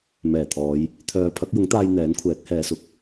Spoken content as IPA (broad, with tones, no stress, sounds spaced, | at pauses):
m ɛː˨˩ t̪ʰ ɔː˨˧ j | t̪ʰ œː˨˧ pʰ ɐ˨˥ k̚ j ʊ˨˥ ŋ t̪ aː˧ j n̪ ɛː˨˥ n kʷʰ ɛː˨˥ k̚ h ɛː˨˧ s ʊ˨ k̚